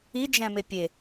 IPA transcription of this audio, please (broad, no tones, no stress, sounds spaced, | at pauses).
i d͡ʒ æ̃ m e pʲ e